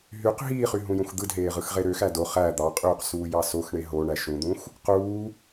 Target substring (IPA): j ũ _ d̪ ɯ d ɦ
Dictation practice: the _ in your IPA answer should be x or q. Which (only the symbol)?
x